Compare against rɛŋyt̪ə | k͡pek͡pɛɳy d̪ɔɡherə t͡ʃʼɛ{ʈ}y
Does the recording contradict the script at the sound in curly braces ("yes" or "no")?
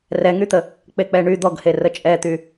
yes